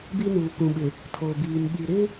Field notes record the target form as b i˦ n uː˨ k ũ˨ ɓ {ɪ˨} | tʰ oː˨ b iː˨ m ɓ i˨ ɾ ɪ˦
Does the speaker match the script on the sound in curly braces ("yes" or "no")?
yes